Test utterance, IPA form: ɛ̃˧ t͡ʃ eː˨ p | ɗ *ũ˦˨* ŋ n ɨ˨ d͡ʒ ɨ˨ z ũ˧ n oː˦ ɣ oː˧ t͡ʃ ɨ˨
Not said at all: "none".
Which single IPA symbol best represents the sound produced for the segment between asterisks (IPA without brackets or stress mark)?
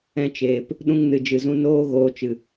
ũ˧